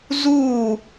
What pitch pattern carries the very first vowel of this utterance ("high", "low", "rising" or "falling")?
falling